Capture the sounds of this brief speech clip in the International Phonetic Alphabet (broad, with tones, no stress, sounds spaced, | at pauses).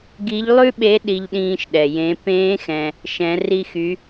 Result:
ɡ i˧˥ ʎ lˠ ʉ˥ ɓ e˧˥ ɗ i˧ ʎ ɗ ĩː˧ ʃ ɗ ɛ˩ j ẽ˩˧ p ẽː˧˥ x ɛ̃˩ | ʃ ɛ̃˩˧ r i˧ x y˩˧